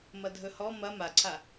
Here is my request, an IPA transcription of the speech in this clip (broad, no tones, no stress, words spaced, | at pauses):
mɐdʱɵhɔ mɐ maǀʰa